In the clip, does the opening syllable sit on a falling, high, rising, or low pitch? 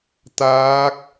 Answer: rising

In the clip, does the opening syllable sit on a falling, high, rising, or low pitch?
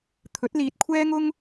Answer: rising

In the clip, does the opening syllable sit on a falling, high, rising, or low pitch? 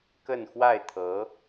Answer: falling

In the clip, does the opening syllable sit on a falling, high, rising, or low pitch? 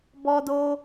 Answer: high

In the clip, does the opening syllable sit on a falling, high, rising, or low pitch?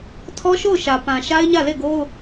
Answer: high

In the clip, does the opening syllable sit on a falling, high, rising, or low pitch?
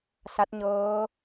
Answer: rising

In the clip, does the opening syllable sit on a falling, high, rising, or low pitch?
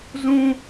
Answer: high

